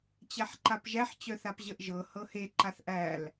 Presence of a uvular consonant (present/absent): absent